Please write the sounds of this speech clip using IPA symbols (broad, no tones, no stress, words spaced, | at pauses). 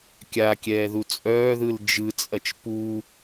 kʲakʲɛːðu t͡sʼœːðɯl d͡ʒɯt͡sʼɐt͡ʃ pu